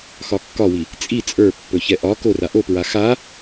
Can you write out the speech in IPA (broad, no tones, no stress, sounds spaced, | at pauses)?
x ɒ kː ɒ w i | t͡sʼ i t͡sʼ ə˞ pː ɵ ç ɛ ʔ ɒ k o r a ʔ o p ɹ a x a